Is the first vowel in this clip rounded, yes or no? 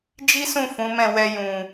no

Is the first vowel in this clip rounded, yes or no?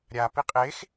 no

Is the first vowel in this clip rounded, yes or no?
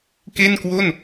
no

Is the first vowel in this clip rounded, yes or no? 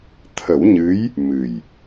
no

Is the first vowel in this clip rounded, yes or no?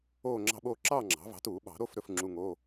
yes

